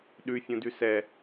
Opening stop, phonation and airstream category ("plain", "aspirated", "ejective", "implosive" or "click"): implosive